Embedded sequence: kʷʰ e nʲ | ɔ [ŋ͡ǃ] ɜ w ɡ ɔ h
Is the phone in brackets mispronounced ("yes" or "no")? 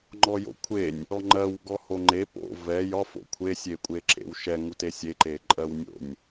no